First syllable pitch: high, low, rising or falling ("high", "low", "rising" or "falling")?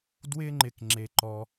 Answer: high